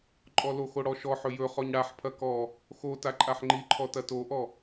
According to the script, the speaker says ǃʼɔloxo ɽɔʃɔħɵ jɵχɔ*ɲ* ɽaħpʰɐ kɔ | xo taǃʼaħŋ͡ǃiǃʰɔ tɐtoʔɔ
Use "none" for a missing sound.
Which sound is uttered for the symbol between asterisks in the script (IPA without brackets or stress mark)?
ɲ